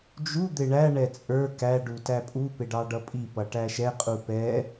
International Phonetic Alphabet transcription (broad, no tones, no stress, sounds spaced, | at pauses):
d͡ʒ u d̪ ɪ ɳ æ ɳ ɛ t͡sʼ ə˞ k æ ɖ u t æ pʼ u p ɪ ɖ ɑ ɖ ʌ pʼ i p ʌ ʈ æ ʃ ɛ qʼ u p ɛ